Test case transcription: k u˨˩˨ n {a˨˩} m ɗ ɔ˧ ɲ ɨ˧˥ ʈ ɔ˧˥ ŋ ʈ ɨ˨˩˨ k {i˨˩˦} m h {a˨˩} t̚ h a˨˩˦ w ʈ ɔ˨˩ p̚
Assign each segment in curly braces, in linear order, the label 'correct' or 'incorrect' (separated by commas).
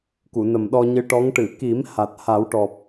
incorrect, correct, correct